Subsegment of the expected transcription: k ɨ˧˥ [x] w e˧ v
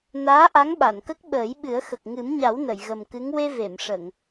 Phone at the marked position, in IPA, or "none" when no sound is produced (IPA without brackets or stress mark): ŋ